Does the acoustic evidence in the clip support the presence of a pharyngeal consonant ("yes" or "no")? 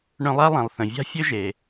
no